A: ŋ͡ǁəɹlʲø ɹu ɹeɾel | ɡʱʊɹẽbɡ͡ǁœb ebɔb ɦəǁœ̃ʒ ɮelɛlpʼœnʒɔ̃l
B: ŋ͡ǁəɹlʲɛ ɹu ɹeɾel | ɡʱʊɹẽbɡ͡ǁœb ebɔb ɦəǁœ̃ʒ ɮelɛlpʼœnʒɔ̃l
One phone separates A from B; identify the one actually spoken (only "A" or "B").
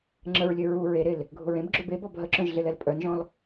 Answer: A